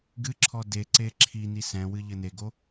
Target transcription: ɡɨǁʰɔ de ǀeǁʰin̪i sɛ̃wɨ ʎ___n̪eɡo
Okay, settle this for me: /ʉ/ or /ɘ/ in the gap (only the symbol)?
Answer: ɘ